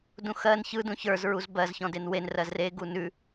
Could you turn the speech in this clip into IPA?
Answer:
d ũ x ɜ n ç ɯ d ũ ç ə˞ z ɹ u z b ɜ z ç ɔ̃ d e n w e n r ɜ z r e ɡ u n ʉ

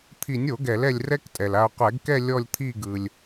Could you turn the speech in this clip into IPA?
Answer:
t̪ʰ i˨˩˦ nʲ o˨˩˦ ɡ ɛ˨˩˦ l ɛ˦˨ lʲ r ɛ˦˥ k tʼ ɛ˨ l a˨ o̯ qʷ ɛ˨˩˦ ɡ k ɛ˦˨ lʲ ɔ˦˨ lʲ t̪ʰ i˦˨ ɡ ɯ˨ lʲ

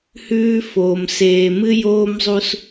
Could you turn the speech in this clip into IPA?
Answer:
h ʉː˦ f oː˨ m s eː˨ m ɨ˦ j oː˦ m zˤ u˦ s

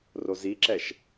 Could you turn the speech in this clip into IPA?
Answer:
r o z i ǁ ɛ ʃ

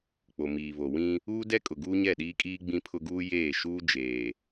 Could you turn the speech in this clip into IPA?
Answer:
k͡p o˨ m iː˨ β o˨ w ĩ˦ | uː˦ d ɛ˦ kʼ ʊ˨ ɡ uː˦ ɲ ɛ˦˨ ɗ iː˦ kʼ iː˦ ɡ͡b ĩ˦ pʰ ʊ˦ ɡ uː˦ j eː˦˨ ʃ uː˦ d͡ʒ eː˨

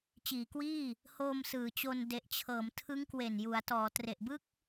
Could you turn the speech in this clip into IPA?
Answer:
t͡ɕ iː˩˦ k w iː˥˩ | h oː˧ m s ɯː˩˦ t͡ɕ o˧ n d e˨˩ ʔ t͡ɕʰ ɤː˩˦ m tʰ ɯ˦˥ ŋ k w e˨˩ n j u˩˦ a̯ t ɔː˩˦ t r e˨˩ ʔ b ɯ˥˩ k̚

